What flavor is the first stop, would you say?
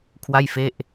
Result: aspirated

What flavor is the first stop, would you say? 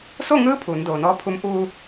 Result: aspirated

